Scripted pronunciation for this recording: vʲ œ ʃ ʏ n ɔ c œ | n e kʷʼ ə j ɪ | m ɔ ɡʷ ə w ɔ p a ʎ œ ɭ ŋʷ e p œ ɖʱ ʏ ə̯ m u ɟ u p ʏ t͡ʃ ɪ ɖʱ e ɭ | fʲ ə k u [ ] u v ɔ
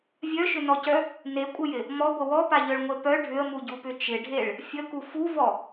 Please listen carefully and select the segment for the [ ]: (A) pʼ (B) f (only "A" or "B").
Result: B